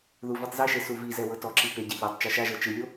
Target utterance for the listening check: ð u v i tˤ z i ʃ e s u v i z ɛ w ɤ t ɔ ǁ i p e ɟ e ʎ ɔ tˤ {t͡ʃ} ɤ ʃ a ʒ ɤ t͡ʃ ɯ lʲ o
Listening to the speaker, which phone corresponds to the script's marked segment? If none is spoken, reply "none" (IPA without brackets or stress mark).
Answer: t͡ʃ